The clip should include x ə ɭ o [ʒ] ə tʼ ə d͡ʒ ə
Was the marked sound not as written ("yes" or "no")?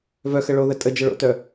yes